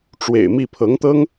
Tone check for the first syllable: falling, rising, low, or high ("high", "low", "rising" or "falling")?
low